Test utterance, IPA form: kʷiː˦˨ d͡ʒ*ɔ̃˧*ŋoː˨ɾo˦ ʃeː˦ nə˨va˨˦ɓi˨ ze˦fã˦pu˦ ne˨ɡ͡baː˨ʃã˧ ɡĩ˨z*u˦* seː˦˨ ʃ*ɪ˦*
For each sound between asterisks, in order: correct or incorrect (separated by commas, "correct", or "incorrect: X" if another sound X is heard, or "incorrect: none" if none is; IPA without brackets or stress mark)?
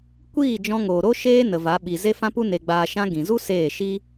correct, correct, incorrect: i˦